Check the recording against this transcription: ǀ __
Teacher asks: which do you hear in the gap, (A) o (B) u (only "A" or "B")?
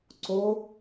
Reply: A